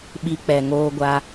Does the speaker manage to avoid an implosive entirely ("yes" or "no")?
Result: no